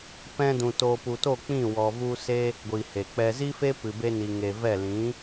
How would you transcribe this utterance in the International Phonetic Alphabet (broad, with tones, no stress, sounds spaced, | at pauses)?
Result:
p ɛ̃˧ d ũ˨ t o˧ p u˨ t o˦˨ k͡p ĩ˦˨ w ɔ˨ v u˧ s e˦ | ɡʷ i˨ h e˨ k͡p ɛ˧ z i˦ f e˦ p ɨ˨ b e˧ n i˨ ŋ e˨ v ɛ˦˨ l ĩ˨˦